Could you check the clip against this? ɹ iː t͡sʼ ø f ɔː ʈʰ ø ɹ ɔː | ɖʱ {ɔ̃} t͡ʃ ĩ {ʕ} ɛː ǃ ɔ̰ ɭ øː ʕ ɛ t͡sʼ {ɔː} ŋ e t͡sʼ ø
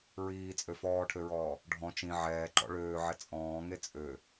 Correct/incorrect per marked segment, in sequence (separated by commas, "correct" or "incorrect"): correct, correct, incorrect